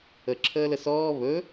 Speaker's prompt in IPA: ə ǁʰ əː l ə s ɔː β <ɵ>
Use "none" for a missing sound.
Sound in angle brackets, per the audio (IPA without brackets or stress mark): ɵ